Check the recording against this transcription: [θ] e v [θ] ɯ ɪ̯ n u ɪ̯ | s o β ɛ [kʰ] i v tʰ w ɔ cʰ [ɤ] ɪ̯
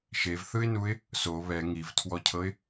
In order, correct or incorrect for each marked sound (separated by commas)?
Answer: incorrect, correct, incorrect, correct